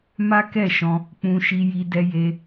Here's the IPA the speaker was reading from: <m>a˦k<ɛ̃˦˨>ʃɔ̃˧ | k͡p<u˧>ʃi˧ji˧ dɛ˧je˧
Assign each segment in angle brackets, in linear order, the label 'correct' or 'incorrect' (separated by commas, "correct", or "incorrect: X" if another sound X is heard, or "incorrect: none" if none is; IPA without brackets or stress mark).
correct, incorrect: ɛ˦˨, incorrect: ũ˧